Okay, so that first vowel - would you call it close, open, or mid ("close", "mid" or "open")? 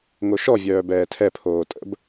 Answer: mid